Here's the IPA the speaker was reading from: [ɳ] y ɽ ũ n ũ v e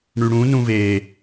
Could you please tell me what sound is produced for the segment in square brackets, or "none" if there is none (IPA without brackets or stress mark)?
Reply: ɳ